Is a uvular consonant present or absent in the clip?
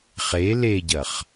present